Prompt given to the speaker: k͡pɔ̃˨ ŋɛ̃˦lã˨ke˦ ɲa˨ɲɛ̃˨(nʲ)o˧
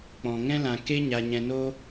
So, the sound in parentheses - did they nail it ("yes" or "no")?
no